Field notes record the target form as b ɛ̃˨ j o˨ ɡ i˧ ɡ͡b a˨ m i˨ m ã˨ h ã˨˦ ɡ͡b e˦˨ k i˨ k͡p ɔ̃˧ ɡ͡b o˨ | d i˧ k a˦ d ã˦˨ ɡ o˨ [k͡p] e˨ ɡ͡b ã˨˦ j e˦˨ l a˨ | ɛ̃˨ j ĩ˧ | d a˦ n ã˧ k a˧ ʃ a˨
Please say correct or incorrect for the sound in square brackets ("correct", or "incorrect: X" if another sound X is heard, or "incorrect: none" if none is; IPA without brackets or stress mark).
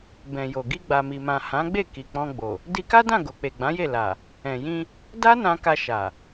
correct